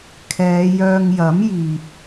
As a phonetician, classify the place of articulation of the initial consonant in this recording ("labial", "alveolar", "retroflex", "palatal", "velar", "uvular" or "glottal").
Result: velar